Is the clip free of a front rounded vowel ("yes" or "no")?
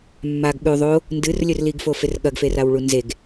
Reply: yes